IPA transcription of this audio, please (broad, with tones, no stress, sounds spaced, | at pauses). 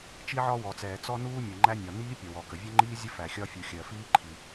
t͡ʃ i˥ ʕ ɒ˥ w ɔ˩ t͡s ɛː˩ t͡s ɔ˥ n uː˥ mʲ ɜ˩ ŋ͡ǃ æ˥ nʲ ɒ˩ n iː˥ pʲ ʌ˩ w ɔ˩ k ə˩ vʲ ʌ˥ ŋ͡ǃ iː˥ zʲ ə˥ f æ˩ xʲ ɒ˥ fʲ u˩ xʲ ɜ˩ f iː˥ ǃʰ i˩